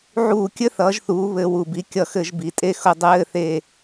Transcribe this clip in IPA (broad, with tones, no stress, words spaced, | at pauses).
ʕuː˧˩˧kʲɘ˧˥˧θʌː˩˧ʒ θuː˩˧ βɘ˧˩˧ wu˨˩bi˨˥ kʲʌ˧˩˧xɘ˧˩˧ʒ bi˩˧tʼe˦˨xʊ˦˨ dˤɘː˧˥˧θe˦˨